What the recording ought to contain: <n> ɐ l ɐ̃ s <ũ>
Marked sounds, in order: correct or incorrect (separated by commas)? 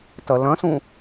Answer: incorrect, correct